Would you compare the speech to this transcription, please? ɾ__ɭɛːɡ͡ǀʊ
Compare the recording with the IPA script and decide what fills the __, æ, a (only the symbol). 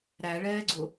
æ